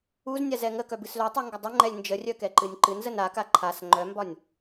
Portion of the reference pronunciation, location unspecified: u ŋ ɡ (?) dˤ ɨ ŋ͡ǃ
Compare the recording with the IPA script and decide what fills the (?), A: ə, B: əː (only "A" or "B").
A